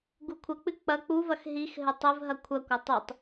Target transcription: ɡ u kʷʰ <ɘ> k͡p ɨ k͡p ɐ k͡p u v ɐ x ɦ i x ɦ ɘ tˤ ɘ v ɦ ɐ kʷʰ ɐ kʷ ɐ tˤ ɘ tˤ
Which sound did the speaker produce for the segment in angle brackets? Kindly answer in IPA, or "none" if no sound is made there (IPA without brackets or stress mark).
ɘ